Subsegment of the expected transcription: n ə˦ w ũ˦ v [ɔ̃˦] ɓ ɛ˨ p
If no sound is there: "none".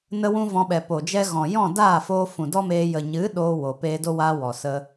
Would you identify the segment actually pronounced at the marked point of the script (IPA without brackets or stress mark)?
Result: ɔ̃˧